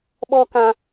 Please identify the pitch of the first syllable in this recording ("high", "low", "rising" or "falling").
high